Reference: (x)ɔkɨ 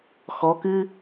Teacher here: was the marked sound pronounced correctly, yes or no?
yes